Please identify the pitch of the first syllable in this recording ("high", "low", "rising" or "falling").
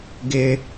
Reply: high